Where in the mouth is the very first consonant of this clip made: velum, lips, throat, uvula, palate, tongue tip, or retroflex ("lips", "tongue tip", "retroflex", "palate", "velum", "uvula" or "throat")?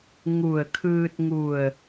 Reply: velum